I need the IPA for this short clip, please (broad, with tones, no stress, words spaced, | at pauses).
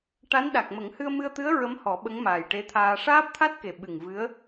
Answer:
ʈa˧˥n ɗa˨˩k̚ mə˨˩˦ŋhɨ˧ə̯mɨ˧ə̯t̪ɨ˧˥ə̯ ɹə˧˥mhɔ˨˩˦ ɓə˧˥ŋmaː˨˩jʈe˧˥t̪ʰaː˧ ʂaː˦˥p̚t̪ʰa˦˥t̚ke˨˩ ɓɨ˨˩ŋ vɨ˧˥ə̯